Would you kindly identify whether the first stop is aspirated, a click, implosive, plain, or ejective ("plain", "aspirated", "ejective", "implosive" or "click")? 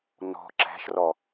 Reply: click